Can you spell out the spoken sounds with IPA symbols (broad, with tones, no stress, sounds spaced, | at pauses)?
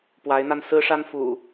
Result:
p w a˨˦ ɪ̯ n̪ a˧ n s ɹ̩˦ ʂ a˦ n f ṵ˨˩